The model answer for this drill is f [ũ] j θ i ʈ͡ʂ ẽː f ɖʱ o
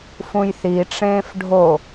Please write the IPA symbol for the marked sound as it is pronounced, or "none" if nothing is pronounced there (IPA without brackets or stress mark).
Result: ũ